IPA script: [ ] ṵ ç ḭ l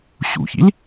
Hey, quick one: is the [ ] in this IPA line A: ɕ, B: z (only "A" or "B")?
A